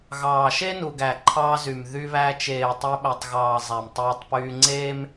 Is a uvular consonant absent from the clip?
yes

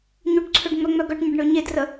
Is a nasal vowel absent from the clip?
yes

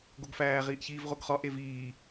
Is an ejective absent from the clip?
yes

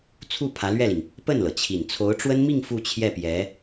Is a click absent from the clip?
yes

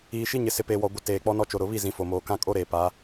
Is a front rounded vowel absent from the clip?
yes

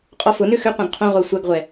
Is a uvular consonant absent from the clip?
no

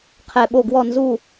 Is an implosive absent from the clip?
no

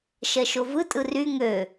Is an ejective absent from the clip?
no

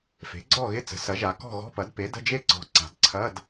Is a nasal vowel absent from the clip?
yes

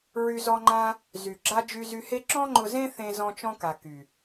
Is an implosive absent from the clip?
yes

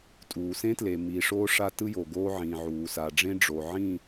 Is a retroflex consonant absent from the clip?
no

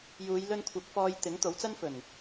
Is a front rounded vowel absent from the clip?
yes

